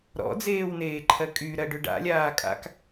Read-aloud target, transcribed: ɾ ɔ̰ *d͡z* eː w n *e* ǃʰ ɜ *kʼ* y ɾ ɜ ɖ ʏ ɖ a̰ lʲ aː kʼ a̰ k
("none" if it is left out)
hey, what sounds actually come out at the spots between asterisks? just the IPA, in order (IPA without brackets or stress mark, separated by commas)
d͡z, eː, kʼ